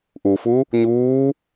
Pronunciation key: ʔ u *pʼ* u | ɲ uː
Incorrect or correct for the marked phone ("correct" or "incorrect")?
incorrect